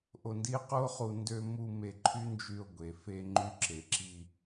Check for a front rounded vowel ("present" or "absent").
present